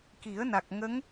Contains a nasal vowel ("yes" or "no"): no